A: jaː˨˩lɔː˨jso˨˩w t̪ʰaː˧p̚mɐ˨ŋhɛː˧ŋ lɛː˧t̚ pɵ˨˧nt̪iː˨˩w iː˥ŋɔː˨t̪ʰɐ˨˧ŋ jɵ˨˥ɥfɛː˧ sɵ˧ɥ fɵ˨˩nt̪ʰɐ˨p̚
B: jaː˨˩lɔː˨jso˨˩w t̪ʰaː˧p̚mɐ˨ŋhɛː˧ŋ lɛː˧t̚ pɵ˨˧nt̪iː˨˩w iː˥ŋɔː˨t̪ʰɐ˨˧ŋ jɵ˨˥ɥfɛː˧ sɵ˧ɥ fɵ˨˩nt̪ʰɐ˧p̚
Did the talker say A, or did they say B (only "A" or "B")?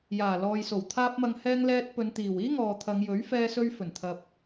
A